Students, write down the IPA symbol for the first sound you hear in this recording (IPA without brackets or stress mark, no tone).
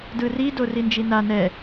d